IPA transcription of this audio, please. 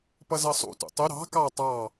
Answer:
p ʌ z ʌ sˤ ṵ t ṵ tˤ ʊ ɾ ɑ̤ k ɑ tˤ ɑ

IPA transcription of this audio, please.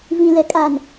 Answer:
v ĩ˦ l ɛ˦ kʼ a˦˨ n

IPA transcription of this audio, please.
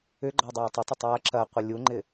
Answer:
ʏ ɡ͡ǃ ɔ dˤ ɐː tˤ ɪ tˤ ʏ tˤ j ɐ ǁ ɐ qʷ ɪ lʲ u ŋ͡ǃ ɪ

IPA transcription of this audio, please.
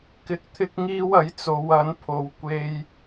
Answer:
k ɪ˧ k̚ t̪ʰ ɪ˥ k̚ ŋ iː˥ w ɐ˨˥ j t͡s o˨˧ w ɐ˨˥ n pʰ o˧ w kʷ e˥ j

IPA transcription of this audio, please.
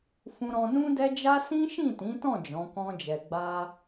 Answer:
f ũ˧ ɾ ɔ̃˧ n ũ˦ d ɛ˦ d͡ʒ a˦ s ĩ˦ ʃ ĩ˦˨ t ĩ˨˦ t ɔ̃˦˨ d͡ʒ ɔ̃˨˦ k ɔ̃˦ d͡ʒ ɛ˧ ɡ͡b a˦

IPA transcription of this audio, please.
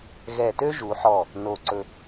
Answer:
ɣ ɛ˧˩ t ø˥ ʒ u˩˧ ħ ɔ˧˩ | n o˧˩ ǀ ɵ˧

